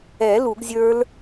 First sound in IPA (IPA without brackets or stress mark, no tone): ɛ